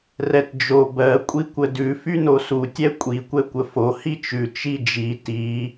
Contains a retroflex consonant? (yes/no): no